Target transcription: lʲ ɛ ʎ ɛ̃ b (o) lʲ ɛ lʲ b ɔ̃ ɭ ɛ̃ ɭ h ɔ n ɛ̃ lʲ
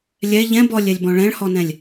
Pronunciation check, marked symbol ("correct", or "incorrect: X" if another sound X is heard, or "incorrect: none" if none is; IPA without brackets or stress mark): incorrect: ɔ